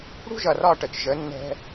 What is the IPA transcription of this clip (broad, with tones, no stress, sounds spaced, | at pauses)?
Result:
ɽ ṳ˦ ʒ ʌ˨ r ɒ˦˨ ʈ ə˨ t͡ʃ ʒ ə˨˦ nː ɛ̤˦